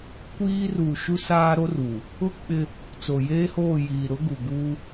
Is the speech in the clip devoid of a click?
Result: yes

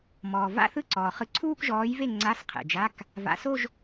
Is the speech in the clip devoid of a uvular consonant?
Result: no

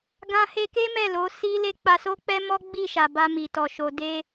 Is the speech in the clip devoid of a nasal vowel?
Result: no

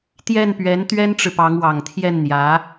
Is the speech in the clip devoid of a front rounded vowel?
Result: yes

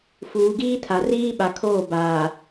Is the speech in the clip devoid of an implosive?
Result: no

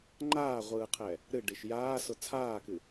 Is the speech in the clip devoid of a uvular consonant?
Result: no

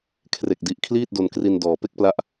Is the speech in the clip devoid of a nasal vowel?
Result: yes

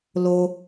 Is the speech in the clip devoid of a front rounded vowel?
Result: yes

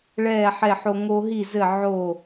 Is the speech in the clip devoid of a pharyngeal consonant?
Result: no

